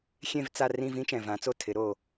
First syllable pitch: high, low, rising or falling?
falling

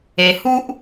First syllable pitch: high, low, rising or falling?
low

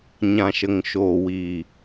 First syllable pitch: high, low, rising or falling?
low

